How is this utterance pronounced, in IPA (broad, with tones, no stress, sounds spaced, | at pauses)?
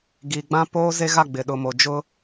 ɡ i˨ ɡ͡b ã˦ p oː˦ z e˦ ɣ a˦˨ ɡ͡b ɪ˨ ɗ ʊ˨ m o˨ d͡ʒ ʊ˦